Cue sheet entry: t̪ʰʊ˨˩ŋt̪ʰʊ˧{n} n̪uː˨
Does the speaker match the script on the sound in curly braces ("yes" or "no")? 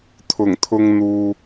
no